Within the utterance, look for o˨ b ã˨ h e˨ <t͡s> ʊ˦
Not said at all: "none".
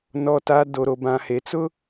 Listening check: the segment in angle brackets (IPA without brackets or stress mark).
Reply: t͡s